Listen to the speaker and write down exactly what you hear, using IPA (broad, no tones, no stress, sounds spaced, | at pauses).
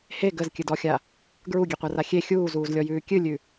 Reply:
h e ɡ ə z kʲ ɨ d ɔ xʲ a | ɡ ɹ u ɡʲ e qʷ a r a xʲ e xʲ uː z uː z lʲ ɔ j ʉː kʲ ɨ lʲ ʉ